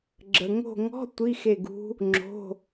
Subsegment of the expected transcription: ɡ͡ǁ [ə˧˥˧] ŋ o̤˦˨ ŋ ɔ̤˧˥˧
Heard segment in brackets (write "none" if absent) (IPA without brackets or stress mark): ə˨